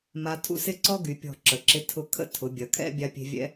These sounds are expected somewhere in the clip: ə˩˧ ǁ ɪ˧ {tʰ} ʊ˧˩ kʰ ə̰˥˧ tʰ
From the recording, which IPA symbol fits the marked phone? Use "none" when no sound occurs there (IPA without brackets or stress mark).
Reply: tʰ